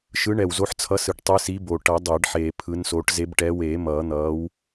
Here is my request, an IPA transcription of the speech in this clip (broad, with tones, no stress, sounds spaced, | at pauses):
ʃ ɯ˨˦ ɳ ɛ˨˩ w z o˨˦ ħ t͡sʰ ʌ˨˦ s ɯ˨˩ ʈ tˤ ɯ˨˦ s i˨˦ b o˨˩ ʈ ʌ˨˩˦ dˤ eː˨˩˦ ɖ ħ eː˨˩ pʰ ɯ˨˦ n s oː˨˦ ʈ z e˨˦ b ʈ ɛː˨˦ w eː˨˩˦ m ʌː˨˩˦ n̪ ʌː˨˦ w